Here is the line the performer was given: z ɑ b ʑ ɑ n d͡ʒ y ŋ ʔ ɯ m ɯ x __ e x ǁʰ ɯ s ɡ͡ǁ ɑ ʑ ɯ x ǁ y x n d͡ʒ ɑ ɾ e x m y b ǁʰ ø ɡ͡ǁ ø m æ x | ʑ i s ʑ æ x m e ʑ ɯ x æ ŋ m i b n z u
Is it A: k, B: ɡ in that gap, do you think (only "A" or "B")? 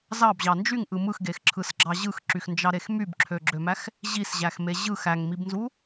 B